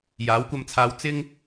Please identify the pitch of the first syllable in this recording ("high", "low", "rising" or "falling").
rising